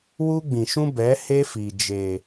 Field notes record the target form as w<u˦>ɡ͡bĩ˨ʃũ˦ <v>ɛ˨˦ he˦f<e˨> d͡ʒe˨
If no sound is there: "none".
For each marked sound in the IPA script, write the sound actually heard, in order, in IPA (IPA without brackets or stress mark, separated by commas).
u˦, b, i˨